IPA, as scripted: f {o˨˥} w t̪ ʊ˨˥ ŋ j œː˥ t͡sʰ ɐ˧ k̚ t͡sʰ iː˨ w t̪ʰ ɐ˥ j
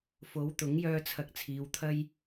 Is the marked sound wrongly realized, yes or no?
no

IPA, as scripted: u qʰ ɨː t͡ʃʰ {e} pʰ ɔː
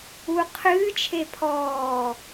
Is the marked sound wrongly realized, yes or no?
no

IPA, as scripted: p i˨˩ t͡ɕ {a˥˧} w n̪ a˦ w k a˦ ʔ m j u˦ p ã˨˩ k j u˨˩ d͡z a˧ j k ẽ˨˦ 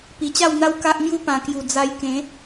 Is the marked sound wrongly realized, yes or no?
no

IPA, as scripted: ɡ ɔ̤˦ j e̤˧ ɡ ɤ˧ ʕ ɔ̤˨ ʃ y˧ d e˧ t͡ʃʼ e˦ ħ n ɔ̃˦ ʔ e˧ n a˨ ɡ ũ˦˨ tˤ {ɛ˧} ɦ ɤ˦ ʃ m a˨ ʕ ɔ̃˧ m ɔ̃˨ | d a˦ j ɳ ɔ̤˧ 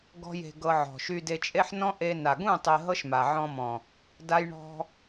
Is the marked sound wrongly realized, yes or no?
yes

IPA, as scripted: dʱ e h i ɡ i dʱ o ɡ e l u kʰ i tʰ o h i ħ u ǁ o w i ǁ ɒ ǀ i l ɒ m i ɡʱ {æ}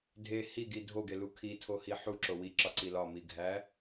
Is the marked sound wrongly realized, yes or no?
no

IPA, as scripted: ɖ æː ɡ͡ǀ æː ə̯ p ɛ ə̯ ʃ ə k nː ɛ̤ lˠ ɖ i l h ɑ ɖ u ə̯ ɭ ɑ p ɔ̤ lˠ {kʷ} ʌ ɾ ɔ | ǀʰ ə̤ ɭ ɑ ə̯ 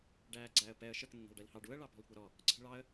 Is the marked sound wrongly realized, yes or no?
no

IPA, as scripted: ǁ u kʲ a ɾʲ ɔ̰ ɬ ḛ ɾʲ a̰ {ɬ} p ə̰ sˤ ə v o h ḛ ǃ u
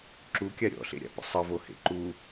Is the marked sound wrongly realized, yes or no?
yes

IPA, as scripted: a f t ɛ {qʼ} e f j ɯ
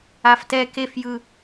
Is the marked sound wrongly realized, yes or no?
yes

